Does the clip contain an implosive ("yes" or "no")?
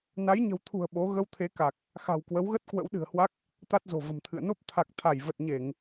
yes